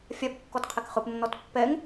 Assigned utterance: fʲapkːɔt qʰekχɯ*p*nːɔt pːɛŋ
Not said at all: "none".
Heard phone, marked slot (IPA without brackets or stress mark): p